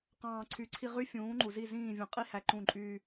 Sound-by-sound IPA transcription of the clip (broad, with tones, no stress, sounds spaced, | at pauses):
q ɑ̃ː˨ ǀʰ y˨ ǀʰ i˧ ʁ y˦ fʲ ũː˨˦ ŋ͡ǃ u˨ z i˦˨ z ĩː˦˨ vʲ ũ˨ qʼ i˦ h æ˧ ǃ ũ˦˨ ǃʼ yː˦